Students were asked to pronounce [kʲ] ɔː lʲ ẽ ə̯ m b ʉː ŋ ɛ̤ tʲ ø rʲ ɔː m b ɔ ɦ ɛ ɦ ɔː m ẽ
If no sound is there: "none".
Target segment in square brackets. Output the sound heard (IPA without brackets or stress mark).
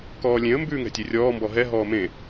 k